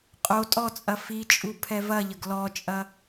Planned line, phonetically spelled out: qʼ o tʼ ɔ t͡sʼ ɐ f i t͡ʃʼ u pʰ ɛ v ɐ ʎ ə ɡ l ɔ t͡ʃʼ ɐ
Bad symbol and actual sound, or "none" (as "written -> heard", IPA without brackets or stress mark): none